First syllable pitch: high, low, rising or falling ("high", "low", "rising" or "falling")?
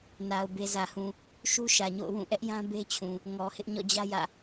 low